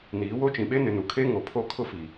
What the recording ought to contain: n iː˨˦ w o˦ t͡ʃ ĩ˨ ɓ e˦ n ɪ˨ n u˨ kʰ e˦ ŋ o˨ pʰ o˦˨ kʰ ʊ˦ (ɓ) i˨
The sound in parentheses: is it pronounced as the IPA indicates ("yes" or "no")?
no